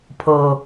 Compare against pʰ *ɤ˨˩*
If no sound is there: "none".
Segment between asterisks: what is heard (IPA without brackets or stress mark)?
ɤ˨˩